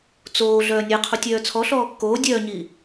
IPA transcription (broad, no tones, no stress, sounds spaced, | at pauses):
t͡s oː ɮ œː nʲ e qʰ u tʲ œː t͡sʰ ɔ ɬ ɔː kː oː dʲ œː ɲ iː